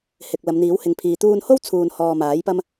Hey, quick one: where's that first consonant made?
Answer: throat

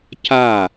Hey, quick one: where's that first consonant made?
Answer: palate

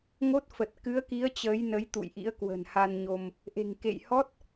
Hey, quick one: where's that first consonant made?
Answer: velum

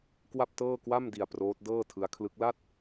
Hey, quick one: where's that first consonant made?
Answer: velum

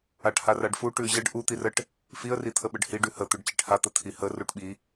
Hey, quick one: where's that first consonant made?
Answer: retroflex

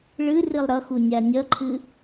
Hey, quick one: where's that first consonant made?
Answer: retroflex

